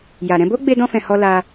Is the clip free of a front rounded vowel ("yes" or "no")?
yes